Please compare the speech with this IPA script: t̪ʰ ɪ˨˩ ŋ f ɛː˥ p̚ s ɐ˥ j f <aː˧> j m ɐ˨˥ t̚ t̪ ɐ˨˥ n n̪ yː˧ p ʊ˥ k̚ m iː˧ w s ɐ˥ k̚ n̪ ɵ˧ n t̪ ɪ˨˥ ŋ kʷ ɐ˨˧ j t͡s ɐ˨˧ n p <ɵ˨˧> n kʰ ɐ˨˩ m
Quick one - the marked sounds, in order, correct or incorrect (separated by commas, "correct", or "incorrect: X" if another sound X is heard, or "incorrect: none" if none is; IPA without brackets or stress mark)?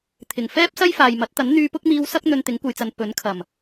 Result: incorrect: aː˨, incorrect: ɵ˨˥